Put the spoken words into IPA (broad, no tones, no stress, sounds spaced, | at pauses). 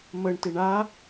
m ə ɳ t e ɳ a